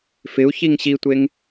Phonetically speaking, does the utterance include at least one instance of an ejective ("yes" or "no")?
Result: no